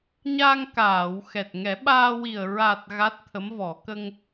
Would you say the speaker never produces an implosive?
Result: no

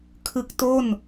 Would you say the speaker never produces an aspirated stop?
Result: no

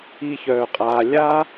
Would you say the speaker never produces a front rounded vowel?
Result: no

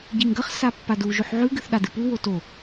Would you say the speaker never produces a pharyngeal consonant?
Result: no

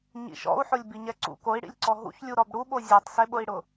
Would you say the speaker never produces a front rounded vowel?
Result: yes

